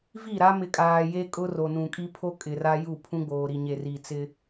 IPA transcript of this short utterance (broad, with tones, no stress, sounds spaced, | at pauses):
v i˦˨ ɾ a˦ m ɪ˨ kʼ aː˨ j e˦ kʼ ʊ˦ r o˨ n ũ˨ kʼ i˦ pʰ o˦ kʼ ɪ˨ r a˦ j u˦˨ pʰ ũ˦ ɡ͡b oː˨ ɾ i˨ ɲ e˨ r i˨ t͡s ɪ˦